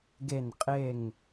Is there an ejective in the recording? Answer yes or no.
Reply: yes